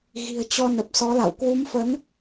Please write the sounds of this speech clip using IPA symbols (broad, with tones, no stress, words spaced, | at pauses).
ɣi̤˨˩ə̯t͡ɕɔ˧ nə˨˩p̚sɔ˨˦la̰˧˨w kwu˨˦mfə˨˦n